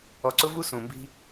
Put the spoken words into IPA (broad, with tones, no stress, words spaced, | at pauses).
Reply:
ɔ˨ǀʊ˥vu˥ sũ˩mbi̤˥